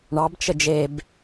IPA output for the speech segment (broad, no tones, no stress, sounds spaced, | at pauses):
ɳ ɑ b t͡ʃ ə d͡ʒ e b